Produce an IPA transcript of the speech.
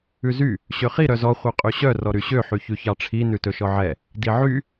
ʉ z y | ɕ ø χ i ɾ œ z ɔ χʷ œ qʼ y ɕ œ r ɔ ɾ y ɕ ø ħ y ç ʉ ç ɑ ʈ͡ʂʰ i n ʉ t ɵ ʃ ɔ ʕ ɛ | d i ʕ y

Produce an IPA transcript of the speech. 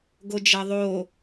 ɡ o d͡ʒ ɐ ðˤ o

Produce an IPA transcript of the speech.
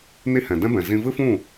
n i˦ h ɛ̃˨ d ɛ̃˦ b ɛ̃˨ z ĩ˧ v ɨ˦ f ũ˦˨

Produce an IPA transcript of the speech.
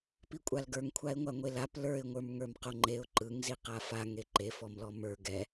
p i kʷʼ a l ɡ ə˞ ŋ kʷʰ a ɪ̯ ŋʷ a ŋʷ e l a p l ə˞ ɪ̯ ŋʷ ə˞ m ŋ ə˞ m q o ŋ͡ǃ e ʊ̯ ǃ ɯ ŋ z i q a f a ŋ e ǃ e f ɔ m l ɔ m ə˞ ɡ ɛ

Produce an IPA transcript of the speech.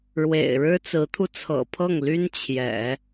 ɻ w ḛ˨˩ ɪ̯ ɻ ɻ̩˥ t͡s ɹ̩˧˥ t̪ʰ u˧ t͡sʰ ɤ̰˨˩ pʰ ɤ˥˩ ŋ l y˥ n t͡ɕʰ j ɛ̰˨˩˦

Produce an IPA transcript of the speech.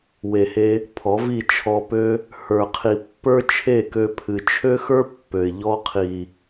w e˨ h e˧ | pʰ ɔ˨˦ v i˦˨ t͡ʃʰ ɔ˧ p ø˦ | h ə˞˨ qʰ i˨ pː ə˞˦ t͡ʃʰ e˦˨ k ø˧ pʰ ɨ˨ t͡ʃʰ ø˦ x ə˞˦ pː ø˨ ɪ̯ ʎ ɔ˧ qʰ i˨

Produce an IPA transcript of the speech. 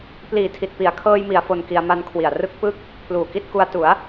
p l iː˨˩ tʰ i˨˩ t̚ p i˨˩ a̯ kʰ ɤː˧ j m i˩˦ a̯ f o˧ n k i˧ a̯ m a˧ n kʰ w i˨˩ a̯ r ɯ˥˩ k̚ p ɯ˥˩ k̚ | pʰ l uː˨˩ k i˥˩ t̚ k u˧ a̯ t u˩˦ a̯

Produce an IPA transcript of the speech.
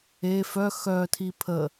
e f œ x œ tʰ i pʰ ə

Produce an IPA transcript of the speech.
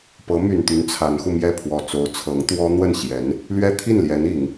p ɤ˧˥ m y˨˩ n t̪ y˧˥ n t͡sʰ a˧˥ n x u˧ m j ɛ˥˩ pʰ w ɔ˨˩ t͡s o˧˥ ʊ̯ t͡sʰ ɤ˧˥ ŋ t̪ w ɔ˥ n̪ w ə˥˩ n ɕ j ɛ˧˥ n | l ɥ ɛ˥ t̪ʰ i˥˩ n l j ɛ˧˥ n i˨˩˦ ŋ

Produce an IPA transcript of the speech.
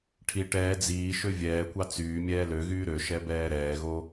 ʈʰ i ʈ ɛː d͡z iː ʃ ø vʲ ɛː kʷ ɑ t͡s yː mʲ ɛː l ø ɣ yː ɾ ø ʃ ɛ b ɛː ɾ ɛː ɣ o

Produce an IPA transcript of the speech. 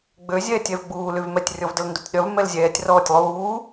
ɡ͡b ø zʲ ɛː tʲ ɛ v ɡ͡b uː l y v m ɛ tʲ rʲ ɔ v d ə l n d u tʲ ɗ œ v m ɛ l zʲ ɛː tʲ r ɔː tʲ lˠ uː

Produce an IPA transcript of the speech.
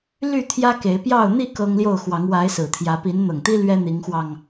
l y˥˨ t̪ʰ j ä˦ k e˨˦ ɪ̯ p j ɑ˥˨ ʊ̯ n̪ i˥˨ k ɤ˦ ŋ l j o˥˨ ʊ̯ x w ɑ˨˦ ŋ w a˨˦ ɪ̯ s ɹ̩˨˩ t̪ʰ j ä˨˦ p i˨˦ n n̪ ɤ˨˩ ŋ t̪ i˦ l ɥ ɛ˦ n̪ i˨˦ ŋ x w ɑ˧ ŋ

